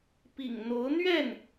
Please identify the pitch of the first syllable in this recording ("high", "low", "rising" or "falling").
low